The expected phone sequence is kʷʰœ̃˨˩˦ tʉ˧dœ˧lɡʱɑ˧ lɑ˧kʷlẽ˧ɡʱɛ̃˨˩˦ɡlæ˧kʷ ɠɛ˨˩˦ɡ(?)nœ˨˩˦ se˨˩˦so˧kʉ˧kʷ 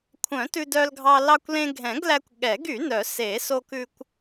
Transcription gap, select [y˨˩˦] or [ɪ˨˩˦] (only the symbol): y˨˩˦